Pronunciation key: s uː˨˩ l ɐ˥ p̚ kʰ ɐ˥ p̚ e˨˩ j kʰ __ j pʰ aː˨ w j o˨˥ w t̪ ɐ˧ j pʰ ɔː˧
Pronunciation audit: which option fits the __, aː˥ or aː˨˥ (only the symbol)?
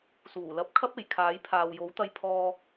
aː˨˥